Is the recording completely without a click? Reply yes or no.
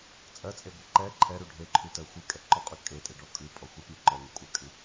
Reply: no